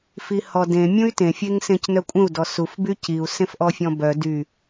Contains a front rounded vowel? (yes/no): yes